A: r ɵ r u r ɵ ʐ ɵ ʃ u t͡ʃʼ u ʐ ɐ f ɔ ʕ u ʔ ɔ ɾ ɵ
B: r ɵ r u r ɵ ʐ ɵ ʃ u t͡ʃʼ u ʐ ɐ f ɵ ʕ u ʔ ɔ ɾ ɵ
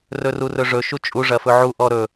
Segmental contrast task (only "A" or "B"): B